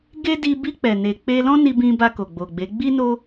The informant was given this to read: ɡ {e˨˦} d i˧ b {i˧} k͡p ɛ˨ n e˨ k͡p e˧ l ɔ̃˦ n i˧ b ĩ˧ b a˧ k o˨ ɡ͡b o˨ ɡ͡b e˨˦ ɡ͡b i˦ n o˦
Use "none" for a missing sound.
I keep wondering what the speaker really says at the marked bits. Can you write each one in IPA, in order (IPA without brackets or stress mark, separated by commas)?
e˦, i˧